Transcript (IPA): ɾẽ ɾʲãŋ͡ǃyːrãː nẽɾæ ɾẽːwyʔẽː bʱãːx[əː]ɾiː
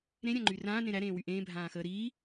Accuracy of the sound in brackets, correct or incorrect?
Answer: correct